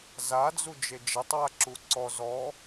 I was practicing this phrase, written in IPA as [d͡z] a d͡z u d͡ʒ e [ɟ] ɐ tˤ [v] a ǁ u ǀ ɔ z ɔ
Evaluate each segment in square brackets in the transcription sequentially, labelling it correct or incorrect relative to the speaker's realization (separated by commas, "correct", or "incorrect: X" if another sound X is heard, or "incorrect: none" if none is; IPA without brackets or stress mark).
incorrect: z, incorrect: d͡ʒ, incorrect: w